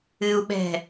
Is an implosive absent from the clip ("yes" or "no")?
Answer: no